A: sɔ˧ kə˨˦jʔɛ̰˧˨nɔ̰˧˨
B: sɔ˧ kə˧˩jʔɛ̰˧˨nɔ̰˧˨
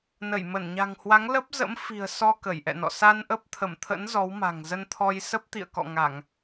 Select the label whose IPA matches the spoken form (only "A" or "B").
B